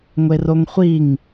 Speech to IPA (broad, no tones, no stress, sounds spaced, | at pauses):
ŋʷ e r o ŋ χʷ i ŋ